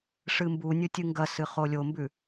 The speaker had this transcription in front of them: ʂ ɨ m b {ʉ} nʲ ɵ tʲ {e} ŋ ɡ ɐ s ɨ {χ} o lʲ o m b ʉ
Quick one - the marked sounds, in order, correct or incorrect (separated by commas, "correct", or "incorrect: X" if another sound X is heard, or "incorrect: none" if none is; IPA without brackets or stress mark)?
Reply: incorrect: u, incorrect: ɨ, correct